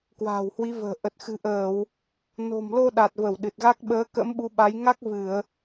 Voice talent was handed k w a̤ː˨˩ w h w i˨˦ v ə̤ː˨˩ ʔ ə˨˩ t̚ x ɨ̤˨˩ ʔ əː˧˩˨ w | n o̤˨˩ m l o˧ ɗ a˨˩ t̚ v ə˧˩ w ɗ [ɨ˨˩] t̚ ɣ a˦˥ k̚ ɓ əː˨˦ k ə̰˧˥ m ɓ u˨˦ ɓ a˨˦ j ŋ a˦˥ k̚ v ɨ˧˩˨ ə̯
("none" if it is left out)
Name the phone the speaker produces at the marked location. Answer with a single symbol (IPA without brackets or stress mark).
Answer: ɨ˨˩